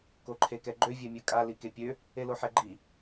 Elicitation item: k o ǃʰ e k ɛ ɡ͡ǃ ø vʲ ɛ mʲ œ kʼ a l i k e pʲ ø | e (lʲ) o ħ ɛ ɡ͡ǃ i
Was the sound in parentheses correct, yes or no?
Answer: no